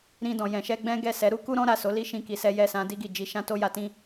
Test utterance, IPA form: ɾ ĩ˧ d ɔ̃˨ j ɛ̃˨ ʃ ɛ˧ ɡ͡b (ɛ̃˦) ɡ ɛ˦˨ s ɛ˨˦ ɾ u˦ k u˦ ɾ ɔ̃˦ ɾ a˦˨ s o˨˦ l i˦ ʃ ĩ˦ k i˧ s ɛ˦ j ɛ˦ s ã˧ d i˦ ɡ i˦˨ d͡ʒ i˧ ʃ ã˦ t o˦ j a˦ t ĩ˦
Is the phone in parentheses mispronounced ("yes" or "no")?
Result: no